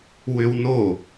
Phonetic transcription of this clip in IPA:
w ʏ w n o

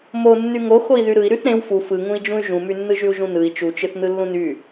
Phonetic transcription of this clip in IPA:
m o nː y ŋ o x o i̯ ð y ɾ ɯ i̯ ɾ y θ ɾ ẽ w f u f ɯ ŋ ũ i̯ d͡ʒ ũ y̯ ʒ ũ m y nː ɯ ʒ y u̯ ʒ ũ n ɯ i̯ t͡ʃ u t͡ʃ ɯ θ n ɯ lː ũ n y

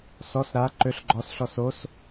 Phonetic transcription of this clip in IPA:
s ɔ s ɾ a ǃ ø ɬ ɡ͡ǃ ɔ s ɬ ɔ s o s

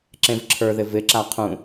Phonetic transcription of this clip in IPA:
ǁ ẽ v ǁʰ ə˞ ð ɪ v ɪ ǁ a qʰ ũ

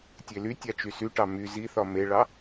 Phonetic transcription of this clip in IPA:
tʲ e l y tʲ a t͡ʃ y s y ʈ ɑ m y z i θ ɒ m e ɭ ɑ

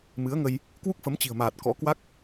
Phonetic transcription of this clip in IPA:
m ɨ˨˦ ə̯ ŋ ə˧ j | k w u˦˥ k̚ f ə˨˦ m t͡ɕ i̤˨˩ ə̯ m aː˨˩ t̚ k ɔ̰˧˥ k w a˦˥ k̚

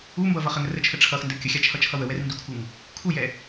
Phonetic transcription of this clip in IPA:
u m b ʌ v ʌ χ ə ŋ ə r ə t͡ʃʰ ə ʈ͡ʂʰ ʌ x n d ə kʲ ə xʲ a t͡ʃʰ ʌ t͡ʃʰ ʌ w ə w ɛ r n d u kʰ u ŋ | kʰ u j ɛ

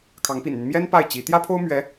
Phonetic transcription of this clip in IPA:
kʰ ɑ˧˥ ŋ p ḭ˨˩ n n̪ y˦ n m j ɛ˥ n p a˥˩ ɪ̯ t͡ɕ i˧˥ t̪ j ä˥ pʰ o˥ ʊ̯ m ɥ ɛ˧˥

